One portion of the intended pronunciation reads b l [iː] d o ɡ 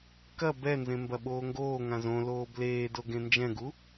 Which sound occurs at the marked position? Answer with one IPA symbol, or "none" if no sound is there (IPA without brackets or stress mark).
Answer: eː